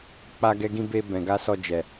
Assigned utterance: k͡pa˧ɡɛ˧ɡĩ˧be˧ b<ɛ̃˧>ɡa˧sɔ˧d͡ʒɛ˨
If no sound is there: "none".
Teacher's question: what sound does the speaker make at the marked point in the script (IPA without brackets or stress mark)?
ɛ̃˨